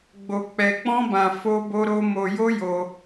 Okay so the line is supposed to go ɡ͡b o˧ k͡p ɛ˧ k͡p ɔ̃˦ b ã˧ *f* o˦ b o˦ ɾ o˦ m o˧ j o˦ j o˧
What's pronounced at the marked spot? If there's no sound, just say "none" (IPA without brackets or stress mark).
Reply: f